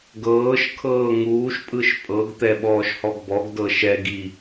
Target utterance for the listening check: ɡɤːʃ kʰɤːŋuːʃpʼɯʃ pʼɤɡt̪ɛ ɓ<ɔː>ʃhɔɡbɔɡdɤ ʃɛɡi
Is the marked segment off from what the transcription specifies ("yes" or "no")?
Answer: no